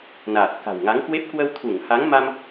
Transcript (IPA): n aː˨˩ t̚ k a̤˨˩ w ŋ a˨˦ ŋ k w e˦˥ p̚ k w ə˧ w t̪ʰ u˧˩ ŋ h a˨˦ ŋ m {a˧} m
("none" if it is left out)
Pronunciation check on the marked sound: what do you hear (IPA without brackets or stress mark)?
a˧